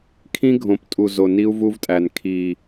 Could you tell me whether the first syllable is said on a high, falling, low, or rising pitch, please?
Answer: high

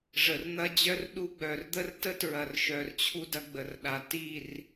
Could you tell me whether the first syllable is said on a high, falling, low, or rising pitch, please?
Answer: low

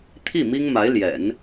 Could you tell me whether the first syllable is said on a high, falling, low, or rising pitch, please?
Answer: falling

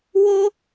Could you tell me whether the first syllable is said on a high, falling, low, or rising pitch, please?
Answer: high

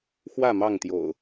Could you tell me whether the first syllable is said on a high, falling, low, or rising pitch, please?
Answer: falling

